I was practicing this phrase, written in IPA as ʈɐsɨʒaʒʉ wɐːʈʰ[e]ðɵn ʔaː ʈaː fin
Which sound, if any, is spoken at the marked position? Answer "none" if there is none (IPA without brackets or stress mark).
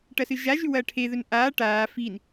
e